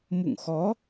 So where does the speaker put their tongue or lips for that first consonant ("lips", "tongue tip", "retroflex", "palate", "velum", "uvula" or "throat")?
lips